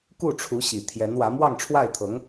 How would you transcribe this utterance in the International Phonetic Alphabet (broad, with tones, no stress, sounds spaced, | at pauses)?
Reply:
k u˥˩ ʈ͡ʂʰ u˧˥ ɕ i˨˩ t̪ʰ j ɛ˧˥ n w ä˧˥ m w ɑ˥˧ ŋ ʈ͡ʂʰ w a˥˩ ɪ̯ t̪ʰ ɤ˧˥ ŋ